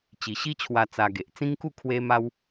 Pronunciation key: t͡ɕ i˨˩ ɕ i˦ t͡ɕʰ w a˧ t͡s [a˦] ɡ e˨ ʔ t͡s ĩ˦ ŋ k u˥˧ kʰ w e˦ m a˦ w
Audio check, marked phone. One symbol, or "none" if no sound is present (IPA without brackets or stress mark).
a˧